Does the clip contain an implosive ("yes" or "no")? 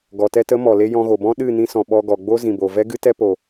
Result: yes